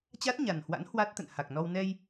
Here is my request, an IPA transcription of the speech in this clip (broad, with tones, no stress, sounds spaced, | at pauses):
t͡ɕ a˦˥ t̚ ɲ a˨˩ n h w a̰˧˥ n h w a˦˥ t̚ t̪ ə̰˧˨ n h a˨˩ k̚ n ɔ˧ w n ɛ˧ j